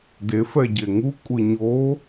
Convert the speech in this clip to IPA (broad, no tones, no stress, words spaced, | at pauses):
defɛ ɟeŋukʷʼɯ ɲo